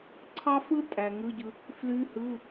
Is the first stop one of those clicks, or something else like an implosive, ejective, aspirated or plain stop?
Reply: click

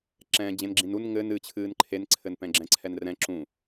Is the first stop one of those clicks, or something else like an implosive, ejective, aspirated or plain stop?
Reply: click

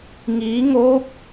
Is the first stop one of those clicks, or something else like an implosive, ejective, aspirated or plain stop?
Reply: plain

